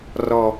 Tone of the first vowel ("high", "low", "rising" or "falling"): low